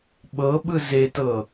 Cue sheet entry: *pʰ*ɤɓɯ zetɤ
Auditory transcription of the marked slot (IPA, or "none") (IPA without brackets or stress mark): ɓ